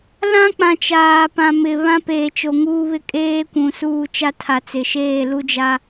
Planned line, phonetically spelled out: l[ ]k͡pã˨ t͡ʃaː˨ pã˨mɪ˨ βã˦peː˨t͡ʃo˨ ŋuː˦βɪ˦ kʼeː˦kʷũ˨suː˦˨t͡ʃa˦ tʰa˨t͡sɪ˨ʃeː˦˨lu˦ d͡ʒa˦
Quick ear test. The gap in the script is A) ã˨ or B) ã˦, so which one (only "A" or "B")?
B